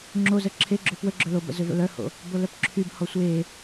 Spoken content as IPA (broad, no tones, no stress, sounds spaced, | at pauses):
ŋ͡ǁ o z ə ǁʰ e ɡ͡ǁ ʏ p w ə ɡ͡ǁ ɵ l o b ə̰ z ʏ v ə̰ l œ h o̰ | b o l œ p ǁʰ y b h ɔ sʷ e